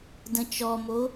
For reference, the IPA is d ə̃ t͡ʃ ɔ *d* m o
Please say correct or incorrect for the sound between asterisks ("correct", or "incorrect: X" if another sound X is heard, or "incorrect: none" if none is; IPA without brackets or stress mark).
incorrect: none